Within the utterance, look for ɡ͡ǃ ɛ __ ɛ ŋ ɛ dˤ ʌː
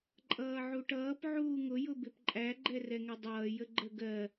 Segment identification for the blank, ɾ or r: r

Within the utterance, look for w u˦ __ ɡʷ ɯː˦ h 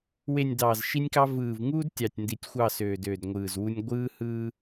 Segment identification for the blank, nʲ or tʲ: nʲ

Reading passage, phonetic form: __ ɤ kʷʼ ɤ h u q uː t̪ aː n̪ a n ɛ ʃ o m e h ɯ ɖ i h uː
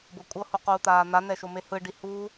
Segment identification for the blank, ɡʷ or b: b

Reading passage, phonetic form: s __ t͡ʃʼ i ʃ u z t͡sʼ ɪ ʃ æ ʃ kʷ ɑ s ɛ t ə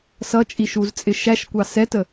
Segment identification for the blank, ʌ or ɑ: ʌ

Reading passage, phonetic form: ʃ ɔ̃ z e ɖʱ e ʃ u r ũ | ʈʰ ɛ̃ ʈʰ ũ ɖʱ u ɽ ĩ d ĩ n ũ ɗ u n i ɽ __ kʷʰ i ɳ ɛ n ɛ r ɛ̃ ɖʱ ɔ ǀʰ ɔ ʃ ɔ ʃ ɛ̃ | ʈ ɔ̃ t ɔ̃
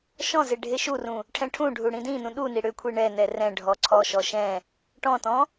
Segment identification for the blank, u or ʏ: ʏ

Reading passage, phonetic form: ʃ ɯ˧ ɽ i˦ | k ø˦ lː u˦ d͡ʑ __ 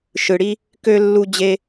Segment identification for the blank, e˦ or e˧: e˦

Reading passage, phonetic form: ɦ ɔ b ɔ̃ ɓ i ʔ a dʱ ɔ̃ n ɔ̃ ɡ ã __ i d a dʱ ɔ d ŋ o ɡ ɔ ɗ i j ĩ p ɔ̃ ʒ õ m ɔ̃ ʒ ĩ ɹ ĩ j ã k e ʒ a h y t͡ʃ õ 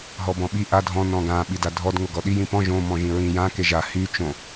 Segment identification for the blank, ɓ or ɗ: ɓ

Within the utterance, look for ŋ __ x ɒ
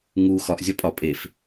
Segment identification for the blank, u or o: u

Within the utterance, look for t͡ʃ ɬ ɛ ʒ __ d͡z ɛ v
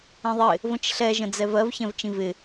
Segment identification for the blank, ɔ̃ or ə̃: ə̃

